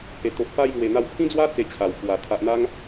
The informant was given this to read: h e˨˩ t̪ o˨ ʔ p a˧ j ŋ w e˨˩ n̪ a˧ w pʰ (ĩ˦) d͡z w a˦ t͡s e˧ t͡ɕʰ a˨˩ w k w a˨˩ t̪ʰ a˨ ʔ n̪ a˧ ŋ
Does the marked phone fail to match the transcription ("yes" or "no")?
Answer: no